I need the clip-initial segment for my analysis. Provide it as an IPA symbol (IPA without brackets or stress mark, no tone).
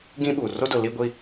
ɡ